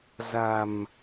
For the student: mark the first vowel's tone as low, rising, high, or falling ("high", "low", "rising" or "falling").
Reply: low